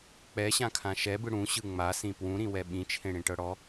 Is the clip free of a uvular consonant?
yes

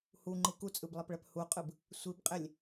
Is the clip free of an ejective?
no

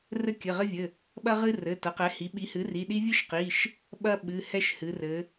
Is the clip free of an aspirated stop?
yes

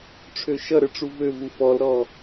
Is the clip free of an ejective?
yes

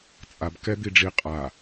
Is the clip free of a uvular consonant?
no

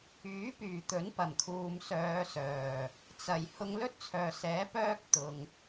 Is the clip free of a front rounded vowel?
no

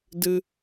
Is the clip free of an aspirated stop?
yes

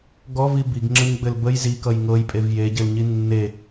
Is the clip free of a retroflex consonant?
yes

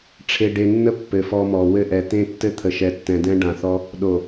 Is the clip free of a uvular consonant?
yes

